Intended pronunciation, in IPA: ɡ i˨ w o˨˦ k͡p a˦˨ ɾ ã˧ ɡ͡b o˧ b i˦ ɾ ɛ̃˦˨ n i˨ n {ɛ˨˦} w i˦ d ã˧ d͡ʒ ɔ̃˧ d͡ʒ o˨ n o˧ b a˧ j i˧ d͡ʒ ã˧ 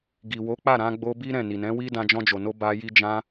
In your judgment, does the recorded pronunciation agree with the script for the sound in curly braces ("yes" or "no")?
no